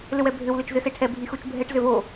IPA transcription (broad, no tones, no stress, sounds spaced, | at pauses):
l ʏ w ɛ bʱ ʏ w l ʏ t͡ʃ z ʏ s e ʈʰ ɛ bʱ i x u t͡ʃ bʱ ɛ ʈ z ʏ v o